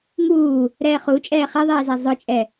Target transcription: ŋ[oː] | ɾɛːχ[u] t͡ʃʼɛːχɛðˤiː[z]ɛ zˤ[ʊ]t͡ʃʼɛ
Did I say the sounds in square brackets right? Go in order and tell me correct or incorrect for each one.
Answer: incorrect: uː, correct, correct, correct

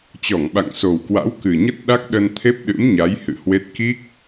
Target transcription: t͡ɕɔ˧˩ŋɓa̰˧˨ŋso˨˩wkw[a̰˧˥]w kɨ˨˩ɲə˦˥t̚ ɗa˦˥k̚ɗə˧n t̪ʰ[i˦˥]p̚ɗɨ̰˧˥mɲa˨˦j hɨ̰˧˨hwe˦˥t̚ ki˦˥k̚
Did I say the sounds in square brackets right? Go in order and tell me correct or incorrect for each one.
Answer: correct, incorrect: e˦˥

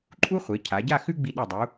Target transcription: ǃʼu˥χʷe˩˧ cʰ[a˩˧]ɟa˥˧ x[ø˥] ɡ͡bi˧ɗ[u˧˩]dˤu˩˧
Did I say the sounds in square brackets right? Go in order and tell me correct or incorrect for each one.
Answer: correct, incorrect: ʉ˥, correct

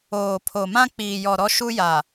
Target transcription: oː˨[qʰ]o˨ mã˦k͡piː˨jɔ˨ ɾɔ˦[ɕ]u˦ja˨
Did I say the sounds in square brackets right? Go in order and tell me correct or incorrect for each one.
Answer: incorrect: pʰ, incorrect: ʃ

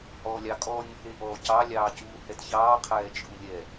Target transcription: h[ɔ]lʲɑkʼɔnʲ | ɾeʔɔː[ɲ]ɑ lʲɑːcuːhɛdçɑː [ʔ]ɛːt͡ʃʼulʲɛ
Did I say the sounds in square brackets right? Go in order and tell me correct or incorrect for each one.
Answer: incorrect: ɔː, incorrect: c, incorrect: qʰ

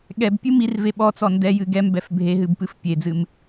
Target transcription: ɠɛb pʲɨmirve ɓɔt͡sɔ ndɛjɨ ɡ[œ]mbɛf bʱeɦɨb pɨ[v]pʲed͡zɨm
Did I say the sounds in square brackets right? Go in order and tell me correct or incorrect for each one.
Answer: incorrect: ɛ, incorrect: f

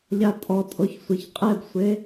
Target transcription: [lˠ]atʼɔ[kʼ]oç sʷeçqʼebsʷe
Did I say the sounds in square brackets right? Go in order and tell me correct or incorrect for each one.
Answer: incorrect: ʎ, incorrect: tʼ

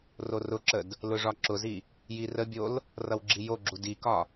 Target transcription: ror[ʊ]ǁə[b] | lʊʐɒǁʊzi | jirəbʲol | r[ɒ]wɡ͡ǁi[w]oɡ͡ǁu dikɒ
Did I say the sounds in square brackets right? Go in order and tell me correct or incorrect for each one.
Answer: correct, incorrect: d, incorrect: ʌ, incorrect: j

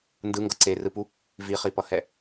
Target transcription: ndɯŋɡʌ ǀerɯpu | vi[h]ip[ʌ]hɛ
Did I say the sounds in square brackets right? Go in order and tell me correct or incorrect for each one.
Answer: incorrect: χ, correct

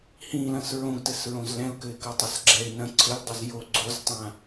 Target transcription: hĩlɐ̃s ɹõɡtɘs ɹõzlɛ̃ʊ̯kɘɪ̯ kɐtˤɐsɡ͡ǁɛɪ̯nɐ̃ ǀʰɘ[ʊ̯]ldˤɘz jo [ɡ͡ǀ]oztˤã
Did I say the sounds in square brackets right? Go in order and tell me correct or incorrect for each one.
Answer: incorrect: none, correct

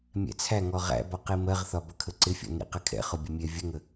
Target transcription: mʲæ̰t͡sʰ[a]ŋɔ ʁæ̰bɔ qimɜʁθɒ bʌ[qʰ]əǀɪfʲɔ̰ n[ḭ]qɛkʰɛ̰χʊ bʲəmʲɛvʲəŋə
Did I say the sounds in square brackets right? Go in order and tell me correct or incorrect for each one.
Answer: incorrect: æ, incorrect: kʰ, correct

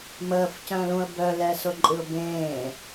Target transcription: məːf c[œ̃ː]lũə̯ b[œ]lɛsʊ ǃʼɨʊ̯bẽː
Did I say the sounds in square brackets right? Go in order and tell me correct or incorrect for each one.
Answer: correct, correct

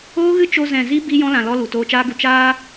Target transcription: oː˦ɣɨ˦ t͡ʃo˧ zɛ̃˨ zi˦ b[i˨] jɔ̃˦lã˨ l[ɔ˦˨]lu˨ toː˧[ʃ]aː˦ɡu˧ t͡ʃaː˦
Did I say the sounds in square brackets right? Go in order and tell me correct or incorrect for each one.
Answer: incorrect: i˦, incorrect: ɔ˦, incorrect: t͡ʃ

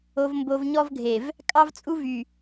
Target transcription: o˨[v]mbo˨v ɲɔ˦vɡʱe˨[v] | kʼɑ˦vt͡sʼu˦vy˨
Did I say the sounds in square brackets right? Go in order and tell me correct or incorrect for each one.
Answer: correct, correct

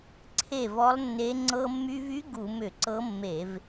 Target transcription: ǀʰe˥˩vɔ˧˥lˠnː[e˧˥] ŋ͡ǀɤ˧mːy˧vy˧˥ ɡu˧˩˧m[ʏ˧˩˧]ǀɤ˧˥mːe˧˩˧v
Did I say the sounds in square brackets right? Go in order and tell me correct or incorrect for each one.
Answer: correct, correct

